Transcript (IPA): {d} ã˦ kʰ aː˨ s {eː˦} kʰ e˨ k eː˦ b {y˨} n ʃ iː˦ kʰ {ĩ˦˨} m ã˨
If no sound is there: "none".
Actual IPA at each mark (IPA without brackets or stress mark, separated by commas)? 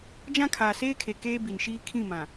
d͡ʒ, eː˦, i˨, ĩ˦˨